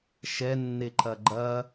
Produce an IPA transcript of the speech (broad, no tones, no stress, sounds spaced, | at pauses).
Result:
ʃ ɛ nː e ǃ ɐ ɡ͡ǃ ɐ